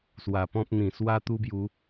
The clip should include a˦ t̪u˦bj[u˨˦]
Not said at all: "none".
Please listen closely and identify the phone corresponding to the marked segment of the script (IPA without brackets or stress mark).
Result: u˨˦